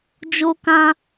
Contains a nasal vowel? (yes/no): yes